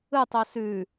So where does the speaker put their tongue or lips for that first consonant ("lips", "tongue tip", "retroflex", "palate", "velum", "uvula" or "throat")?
tongue tip